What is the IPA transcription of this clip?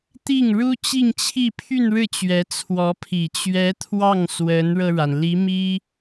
t̪ i˥˩ ŋ ɻ u˥ t͡ɕ i˥˧ ŋ t͡ɕʰ i˥˧ pʰ y˥˧ n ɻ ɻ̩˥˩ t͡ɕ ɥ ɛ˧˥ t͡sʰ w ɔ˧˥ pʰ i˨˩ t͡ɕ ɥ ɛ˧˥ t̪ʰ w ɑ˥˩ ŋ s w ə˧˥ n ɻ ɤ˧ ɻ a˩ n l i˧˥ m i˥

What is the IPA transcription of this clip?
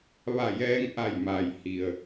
ʋ a˧˩ j ɛː˧ ŋ ʔ a˧˩ j m a˩ j h i˩ ə̯

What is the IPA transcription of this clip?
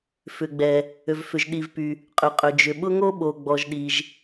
f ʏ˩ ɡ͡b ɛ˩ | ø˩ v f ʏ˩ ʒ ɗ i˩ v p y˩ | qʼ ʏ˩ qʼ ø˩ d͡ʒ ʏ˩ ɓ ʊ˥ ŋ o˥ ɓ o˩ ɡ͡b ɔ˩ ʒ ɗ i˩ ʒ

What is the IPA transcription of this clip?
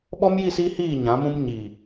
ɓ ɔ˦ m j i˦˨ s i˦ h iː˦˨ ɲ ã˨˦ m ũ˦ m ɲ i˨

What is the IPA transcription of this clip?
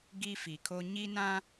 ɡ i˦ f i˨ kʰ o˦ ɲ i˦ n ã˦

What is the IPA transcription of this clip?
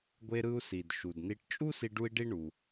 ɡʷ e˧ ɾ ɯ˧ u̯ s i˩ d ʃ u˩ d n i˧ ʈ t͡ʃʼ u˥ s i˧ ɖ u˥ i̯ ɖ i˥ ɳ u˩

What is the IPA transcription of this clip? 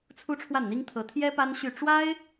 t͡sʰ u˥ ʈ͡ʂʰ w a˥˩ n n̪ i˥ ŋ t̪ʰ ɤ˧˥ t̪ʰ j ɛ˥ p a˥ n ɕ y˥˩ ʈ͡ʂ w a˥ ɪ̯

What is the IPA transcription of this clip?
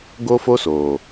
ɡ o˦ f o˦ s oː˨

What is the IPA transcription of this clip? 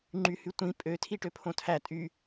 ŋ͡ǃ y h y tʷ ĩ pʼ ø tʰ i ʈ ø pʰ õ tʰ æ tʼ y

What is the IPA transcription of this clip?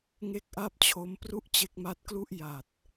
ŋ e˥˩ k̚ ʔ a˥˩ p̚ t͡ɕʰ o˦˥ m p r u˥˩ ʔ t͡ɕ e˦˥ k̚ m a˦˥ t̚ k l u˥˩ ʔ j a˨˩ t̚

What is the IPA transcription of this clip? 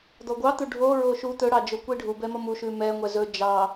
d̪ ɔ ɡʷ ɑ t̪ u ɖʱ o ɹ o ʃ u t̪ ɵ ɽ ɑ d͡ʒ o kʷ i ɖʱ u b ɛ m ʌ m u ʃ ʉ m ɛ ŋʷ ɛ z ɵ d͡ʒ ɑ

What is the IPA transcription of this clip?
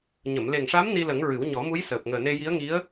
ɲ ə˨˩˨ m l e˨˩ ŋ ʂ a˧˥ m n i˧ l ə˨˩˦ ŋ ɹ ɨ˨˩˦ w ɲ ɔ˨˩˦ m u˧˥ j s əː˨˩ p̚ ŋ əː˨˩ n e˧ j i˧˥ ə̯ ŋ i˧˥ ə̯

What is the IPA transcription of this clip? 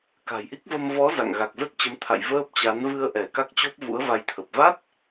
k a̤˨˩ j ʔ i˦˥ k̚ v ə˧ m v ɔ˨˦ z a̰˧˨ ŋ ɣ a˨˩ k̚ z ə˦˥ t̚ t͡ɕ ə˨˦ m t̪ʰ a̰˧˨ j v əː˦˥ p̚ t͡ɕ a˨˦ n v ɨ˧ ə̯ ʔ ɛ˧˩ k a˦˥ k̚ t͡ɕ o˦˥ p̚ v ṵ˧˥ ə̯ v a˧ j t̪ʰ ə˨˩ p̚ v a˦˥ t̚

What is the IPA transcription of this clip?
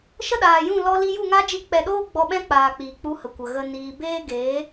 ʃ ə˦ ɗ aː˨ j ũ˦˨ l ɔ˧ l i˧ j u˦˨ ŋ a˦ d͡ʒ i˧ k͡p ɛ˨ ɗ oː˦ ɡ͡b ɔ˧ ɓ ɛ̃˦ k͡p aː˨ k͡p iː˨ k͡p u˧ h ə˨ kʷ ə˨ ɣ ə˦ n iː˧ b eː˦ ɡ eː˨˦

